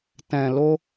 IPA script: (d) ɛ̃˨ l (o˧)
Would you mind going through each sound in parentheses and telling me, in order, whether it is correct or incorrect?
incorrect: t, correct

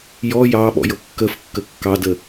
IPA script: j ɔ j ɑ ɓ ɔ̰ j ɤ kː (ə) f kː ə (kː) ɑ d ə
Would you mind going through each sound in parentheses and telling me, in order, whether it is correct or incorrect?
correct, correct

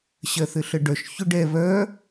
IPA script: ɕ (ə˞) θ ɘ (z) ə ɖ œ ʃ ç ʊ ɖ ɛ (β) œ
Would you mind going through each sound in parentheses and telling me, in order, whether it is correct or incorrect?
incorrect: ɜ, incorrect: ɬ, correct

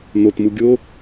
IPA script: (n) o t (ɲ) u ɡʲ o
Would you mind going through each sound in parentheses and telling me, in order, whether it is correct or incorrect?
correct, incorrect: m

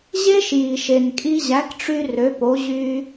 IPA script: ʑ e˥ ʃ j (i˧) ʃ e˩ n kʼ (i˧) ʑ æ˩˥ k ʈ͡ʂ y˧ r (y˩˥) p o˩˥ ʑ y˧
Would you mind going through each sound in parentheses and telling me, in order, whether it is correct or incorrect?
incorrect: i˩, correct, incorrect: ø˩˥

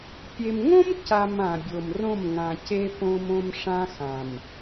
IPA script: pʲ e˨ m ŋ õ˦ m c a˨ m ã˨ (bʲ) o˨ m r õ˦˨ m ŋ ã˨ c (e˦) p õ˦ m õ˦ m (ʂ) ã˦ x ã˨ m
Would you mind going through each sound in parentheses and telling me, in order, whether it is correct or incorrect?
correct, correct, correct

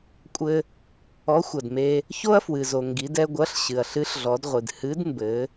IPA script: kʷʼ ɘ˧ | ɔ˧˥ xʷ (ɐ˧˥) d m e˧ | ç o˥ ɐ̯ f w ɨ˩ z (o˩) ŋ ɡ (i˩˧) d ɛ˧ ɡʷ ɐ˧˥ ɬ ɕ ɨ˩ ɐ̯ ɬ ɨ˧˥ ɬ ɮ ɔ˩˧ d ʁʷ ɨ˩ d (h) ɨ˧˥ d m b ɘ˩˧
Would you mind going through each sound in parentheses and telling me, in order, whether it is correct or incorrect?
incorrect: ɐ˩, correct, correct, correct

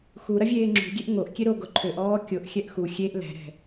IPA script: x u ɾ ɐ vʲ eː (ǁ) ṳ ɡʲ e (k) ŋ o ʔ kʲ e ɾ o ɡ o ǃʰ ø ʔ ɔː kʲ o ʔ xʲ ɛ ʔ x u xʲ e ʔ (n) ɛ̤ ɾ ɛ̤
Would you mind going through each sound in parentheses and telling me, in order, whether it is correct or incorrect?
incorrect: ŋ͡ǁ, incorrect: ʔ, incorrect: l

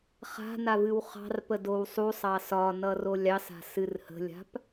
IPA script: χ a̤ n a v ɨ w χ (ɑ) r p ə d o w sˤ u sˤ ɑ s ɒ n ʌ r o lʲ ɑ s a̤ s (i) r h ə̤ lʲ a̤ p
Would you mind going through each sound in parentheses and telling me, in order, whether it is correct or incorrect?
incorrect: ɑ̤, incorrect: ɨ

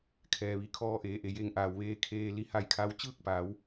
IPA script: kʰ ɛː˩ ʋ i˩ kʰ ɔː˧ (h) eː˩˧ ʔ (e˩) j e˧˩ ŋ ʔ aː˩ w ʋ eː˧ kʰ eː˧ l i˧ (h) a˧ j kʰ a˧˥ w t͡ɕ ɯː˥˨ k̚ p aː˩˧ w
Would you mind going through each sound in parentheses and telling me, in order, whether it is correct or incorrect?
incorrect: ʔ, correct, correct

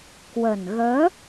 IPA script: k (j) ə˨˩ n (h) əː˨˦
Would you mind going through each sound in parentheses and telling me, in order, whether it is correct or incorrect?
incorrect: w, incorrect: ɣ

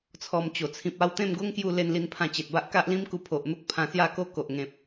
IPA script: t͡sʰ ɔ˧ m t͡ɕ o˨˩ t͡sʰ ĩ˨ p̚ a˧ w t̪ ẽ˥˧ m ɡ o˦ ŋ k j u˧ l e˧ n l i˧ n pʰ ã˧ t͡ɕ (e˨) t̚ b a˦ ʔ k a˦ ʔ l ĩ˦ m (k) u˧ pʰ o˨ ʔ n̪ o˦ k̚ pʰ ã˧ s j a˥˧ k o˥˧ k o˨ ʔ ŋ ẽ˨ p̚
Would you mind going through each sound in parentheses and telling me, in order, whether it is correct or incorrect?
correct, correct

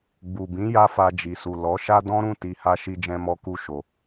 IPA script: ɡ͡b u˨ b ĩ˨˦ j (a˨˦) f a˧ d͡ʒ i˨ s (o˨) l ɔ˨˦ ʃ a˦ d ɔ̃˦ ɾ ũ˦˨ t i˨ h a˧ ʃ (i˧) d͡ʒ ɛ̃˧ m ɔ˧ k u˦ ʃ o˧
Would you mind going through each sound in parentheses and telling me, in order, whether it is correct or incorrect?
incorrect: a˦, incorrect: u˨, correct

